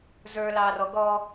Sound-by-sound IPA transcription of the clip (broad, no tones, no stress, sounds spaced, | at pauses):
z ə˞ l ɑː r ɔ ɡ ɔ